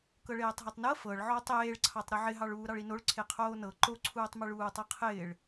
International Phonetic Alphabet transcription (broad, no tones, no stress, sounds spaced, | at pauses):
k ɤ ɭ eː tˤ ɦ ɤ tˤ n ɤ f ɤ ɭ ʕ ɔ tˤ eː ɭ ǀʰ ɑ tˤ ɾ o ʕ ɪ ɦ ɑ ɭ uː ɾ ɑ ɭ i n o ɭ ǀʰ e qʰ oː n ɤ ǃ o ǀʰ uː tˤ m ɪ ɭ uː tˤ ɤ qʰ ɪː ɭ